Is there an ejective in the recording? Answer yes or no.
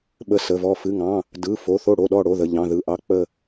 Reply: no